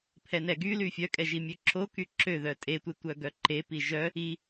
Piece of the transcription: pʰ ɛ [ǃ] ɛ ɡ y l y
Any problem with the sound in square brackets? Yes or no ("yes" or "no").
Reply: yes